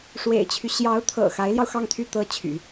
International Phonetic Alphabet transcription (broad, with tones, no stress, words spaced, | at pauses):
ʂwḛ˨˩ɪ̯t͡ɕʰy˦ ɕjɑ˧˥ʊ̯t̪ʰɤ̰˨˩ xa˧˥ɪ̯ljɑ˧ʊ̯xɑ˥˧ŋt̪ʰy˥˩ t̪ɤ˥t͡ɕʰy̰˨˩˦